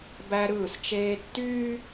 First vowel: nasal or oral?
oral